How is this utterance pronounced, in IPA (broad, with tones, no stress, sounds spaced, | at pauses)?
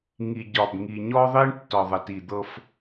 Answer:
ŋ i˨ ɟ ɒ˨ b ŋ i˨ ɲ ɔ˦ ðˤ i˦ ɳ tː ɒ˨ ðˤ ə˨ t i˨ d̪ ɤ˦ f